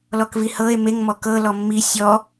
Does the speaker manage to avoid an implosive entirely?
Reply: yes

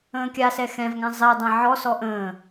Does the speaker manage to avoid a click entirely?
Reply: yes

